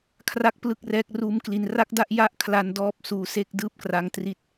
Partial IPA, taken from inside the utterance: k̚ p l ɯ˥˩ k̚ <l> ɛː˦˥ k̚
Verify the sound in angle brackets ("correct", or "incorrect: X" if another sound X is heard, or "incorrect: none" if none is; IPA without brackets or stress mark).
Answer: incorrect: r